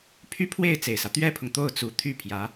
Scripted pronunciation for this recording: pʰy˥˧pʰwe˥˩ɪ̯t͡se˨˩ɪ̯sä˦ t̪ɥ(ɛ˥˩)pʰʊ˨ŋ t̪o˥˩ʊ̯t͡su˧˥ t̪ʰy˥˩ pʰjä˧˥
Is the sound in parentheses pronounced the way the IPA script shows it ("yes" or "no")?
no